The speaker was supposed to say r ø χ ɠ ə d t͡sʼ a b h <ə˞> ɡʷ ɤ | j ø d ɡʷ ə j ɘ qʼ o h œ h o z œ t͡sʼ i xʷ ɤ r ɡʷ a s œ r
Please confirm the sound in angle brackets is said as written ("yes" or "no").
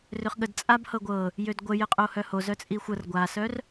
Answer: no